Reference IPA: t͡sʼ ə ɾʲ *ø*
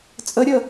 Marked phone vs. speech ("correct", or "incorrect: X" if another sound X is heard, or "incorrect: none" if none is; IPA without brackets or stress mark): incorrect: ə